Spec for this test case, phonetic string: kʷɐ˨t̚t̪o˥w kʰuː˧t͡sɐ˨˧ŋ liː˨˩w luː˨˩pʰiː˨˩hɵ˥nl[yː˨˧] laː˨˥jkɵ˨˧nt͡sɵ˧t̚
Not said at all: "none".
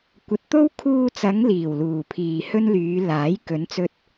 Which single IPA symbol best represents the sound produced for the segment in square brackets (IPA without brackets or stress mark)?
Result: yː˨˧